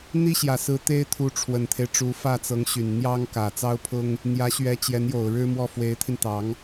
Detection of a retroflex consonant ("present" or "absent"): present